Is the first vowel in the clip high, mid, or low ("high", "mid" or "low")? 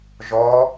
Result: mid